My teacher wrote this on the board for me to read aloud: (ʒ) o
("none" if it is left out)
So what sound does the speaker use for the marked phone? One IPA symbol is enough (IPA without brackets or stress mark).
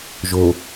ʒ